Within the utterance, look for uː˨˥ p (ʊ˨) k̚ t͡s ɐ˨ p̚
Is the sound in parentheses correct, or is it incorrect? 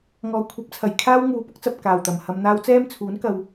incorrect